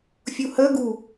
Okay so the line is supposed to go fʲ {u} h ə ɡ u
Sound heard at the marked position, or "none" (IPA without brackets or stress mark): u